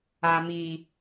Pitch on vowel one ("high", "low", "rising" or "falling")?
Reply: low